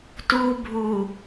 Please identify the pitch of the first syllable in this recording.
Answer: low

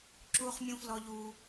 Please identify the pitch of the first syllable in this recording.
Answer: high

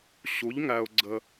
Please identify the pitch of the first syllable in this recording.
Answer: rising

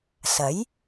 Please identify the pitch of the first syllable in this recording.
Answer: rising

